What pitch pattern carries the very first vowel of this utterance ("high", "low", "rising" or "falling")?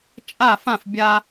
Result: falling